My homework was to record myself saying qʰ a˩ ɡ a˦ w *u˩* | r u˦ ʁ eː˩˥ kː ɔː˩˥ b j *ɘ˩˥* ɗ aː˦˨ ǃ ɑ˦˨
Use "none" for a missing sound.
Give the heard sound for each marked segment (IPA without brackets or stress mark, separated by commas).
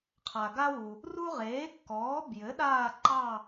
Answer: u˩, ɘ˩˥